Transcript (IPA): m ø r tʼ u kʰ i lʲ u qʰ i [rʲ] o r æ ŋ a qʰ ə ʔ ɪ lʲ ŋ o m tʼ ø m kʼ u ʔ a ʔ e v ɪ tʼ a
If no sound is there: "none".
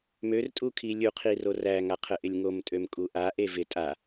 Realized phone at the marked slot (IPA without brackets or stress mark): r